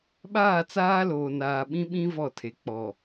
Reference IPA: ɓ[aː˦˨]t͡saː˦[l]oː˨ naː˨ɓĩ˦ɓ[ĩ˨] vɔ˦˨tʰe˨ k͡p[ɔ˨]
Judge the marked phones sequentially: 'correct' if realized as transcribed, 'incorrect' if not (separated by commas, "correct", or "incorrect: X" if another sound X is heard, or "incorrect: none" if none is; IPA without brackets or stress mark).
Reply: correct, correct, incorrect: ĩ˦, correct